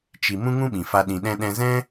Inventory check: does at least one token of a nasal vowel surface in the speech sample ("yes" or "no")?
yes